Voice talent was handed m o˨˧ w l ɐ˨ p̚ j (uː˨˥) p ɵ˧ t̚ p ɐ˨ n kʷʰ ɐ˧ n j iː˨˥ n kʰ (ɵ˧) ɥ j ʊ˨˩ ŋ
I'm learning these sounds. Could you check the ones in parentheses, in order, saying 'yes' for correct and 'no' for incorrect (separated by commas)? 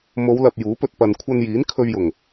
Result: yes, yes